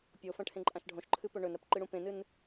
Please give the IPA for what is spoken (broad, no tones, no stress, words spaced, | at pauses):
pʲofɐ̃ʈʰẽǃʼãʃ ɖʱõʃǃʰɨpɵ ɳɵnɾɐpǃɨɽũ pẽnɨn